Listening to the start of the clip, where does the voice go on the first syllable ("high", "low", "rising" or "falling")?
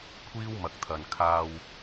high